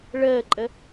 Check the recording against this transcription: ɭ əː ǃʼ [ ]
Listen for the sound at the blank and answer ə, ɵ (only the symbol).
ə